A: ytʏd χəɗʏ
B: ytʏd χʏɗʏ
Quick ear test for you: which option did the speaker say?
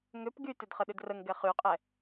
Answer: A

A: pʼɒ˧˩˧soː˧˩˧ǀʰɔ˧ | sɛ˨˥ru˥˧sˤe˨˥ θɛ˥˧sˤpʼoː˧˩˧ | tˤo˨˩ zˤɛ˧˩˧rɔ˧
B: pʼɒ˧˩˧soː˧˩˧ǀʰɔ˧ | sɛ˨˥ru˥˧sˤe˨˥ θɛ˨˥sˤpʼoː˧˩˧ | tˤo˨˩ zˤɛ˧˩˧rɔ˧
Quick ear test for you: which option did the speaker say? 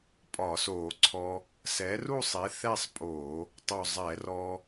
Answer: A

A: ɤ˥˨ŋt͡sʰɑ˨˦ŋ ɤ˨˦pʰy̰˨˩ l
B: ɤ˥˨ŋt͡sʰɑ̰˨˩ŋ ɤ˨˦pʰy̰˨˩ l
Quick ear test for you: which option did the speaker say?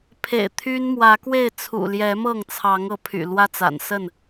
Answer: A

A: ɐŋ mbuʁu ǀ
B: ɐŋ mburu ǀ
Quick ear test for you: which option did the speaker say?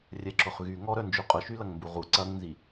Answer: A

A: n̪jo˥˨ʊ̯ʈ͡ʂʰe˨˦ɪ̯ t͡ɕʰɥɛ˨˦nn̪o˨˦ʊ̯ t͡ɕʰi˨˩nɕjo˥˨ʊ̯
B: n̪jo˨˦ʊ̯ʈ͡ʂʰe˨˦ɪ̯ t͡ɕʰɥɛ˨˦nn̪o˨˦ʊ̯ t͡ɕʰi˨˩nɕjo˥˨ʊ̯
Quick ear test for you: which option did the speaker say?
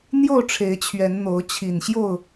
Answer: A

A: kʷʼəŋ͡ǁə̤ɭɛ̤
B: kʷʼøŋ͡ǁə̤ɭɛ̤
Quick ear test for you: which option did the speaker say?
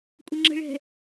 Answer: A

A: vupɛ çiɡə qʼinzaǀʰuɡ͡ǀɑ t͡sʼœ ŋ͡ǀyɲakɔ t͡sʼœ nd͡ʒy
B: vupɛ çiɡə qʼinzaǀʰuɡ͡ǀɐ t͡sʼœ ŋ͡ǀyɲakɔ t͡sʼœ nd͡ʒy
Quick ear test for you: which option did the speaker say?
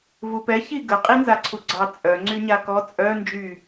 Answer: A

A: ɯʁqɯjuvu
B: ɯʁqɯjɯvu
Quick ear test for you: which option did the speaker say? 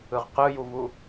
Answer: A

